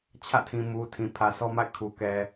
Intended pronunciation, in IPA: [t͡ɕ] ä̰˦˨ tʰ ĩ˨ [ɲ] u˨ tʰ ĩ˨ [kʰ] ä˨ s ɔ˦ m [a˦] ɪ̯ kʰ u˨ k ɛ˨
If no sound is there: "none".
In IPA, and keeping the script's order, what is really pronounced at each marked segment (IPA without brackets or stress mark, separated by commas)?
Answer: t͡ɕʰ, m, pʰ, a̰˦˨